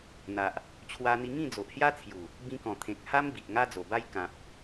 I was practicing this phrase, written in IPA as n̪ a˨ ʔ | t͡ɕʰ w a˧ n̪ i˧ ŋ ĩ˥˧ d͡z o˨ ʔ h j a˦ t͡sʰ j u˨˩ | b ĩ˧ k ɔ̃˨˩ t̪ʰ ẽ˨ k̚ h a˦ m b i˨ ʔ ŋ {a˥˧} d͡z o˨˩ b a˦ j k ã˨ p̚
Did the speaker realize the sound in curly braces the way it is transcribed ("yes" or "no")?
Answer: no